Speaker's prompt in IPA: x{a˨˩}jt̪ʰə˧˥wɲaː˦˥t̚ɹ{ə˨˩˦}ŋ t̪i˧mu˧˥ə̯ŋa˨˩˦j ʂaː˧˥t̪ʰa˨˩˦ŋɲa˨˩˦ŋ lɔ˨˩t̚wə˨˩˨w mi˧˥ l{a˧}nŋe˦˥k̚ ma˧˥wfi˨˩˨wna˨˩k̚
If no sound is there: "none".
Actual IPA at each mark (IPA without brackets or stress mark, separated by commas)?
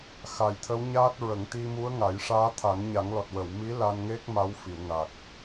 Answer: a˨˩, ə˨˩˦, a˧